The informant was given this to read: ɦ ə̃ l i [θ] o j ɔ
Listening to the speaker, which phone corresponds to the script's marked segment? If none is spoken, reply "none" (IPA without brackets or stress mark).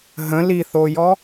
θ